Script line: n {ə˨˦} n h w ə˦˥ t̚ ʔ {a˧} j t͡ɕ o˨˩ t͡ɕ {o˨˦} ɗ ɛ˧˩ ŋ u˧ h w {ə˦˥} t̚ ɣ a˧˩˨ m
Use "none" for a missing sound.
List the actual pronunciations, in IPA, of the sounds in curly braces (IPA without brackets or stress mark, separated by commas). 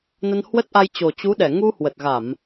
ə˧, a˧, u˨˦, ə˨˩